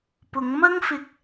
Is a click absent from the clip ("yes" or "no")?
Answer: yes